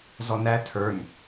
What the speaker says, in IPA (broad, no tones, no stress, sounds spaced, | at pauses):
z ɔ n æ tʰ ə˞ n